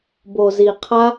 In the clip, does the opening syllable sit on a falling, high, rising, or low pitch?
low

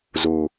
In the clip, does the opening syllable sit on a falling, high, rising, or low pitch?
low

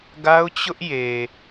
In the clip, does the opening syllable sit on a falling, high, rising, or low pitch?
high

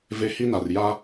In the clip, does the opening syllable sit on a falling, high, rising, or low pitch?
high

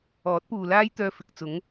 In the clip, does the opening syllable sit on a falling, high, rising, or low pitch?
rising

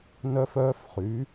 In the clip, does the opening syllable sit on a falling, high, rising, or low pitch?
high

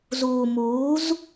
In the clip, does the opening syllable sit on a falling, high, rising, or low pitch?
low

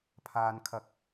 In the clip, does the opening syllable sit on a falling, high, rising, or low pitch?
low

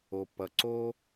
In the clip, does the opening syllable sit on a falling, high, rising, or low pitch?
low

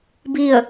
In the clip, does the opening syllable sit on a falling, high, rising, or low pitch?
falling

